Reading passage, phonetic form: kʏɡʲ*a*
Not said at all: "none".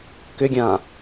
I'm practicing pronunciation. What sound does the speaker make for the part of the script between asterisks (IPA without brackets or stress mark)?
ã